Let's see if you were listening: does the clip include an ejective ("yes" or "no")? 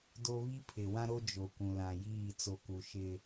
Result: no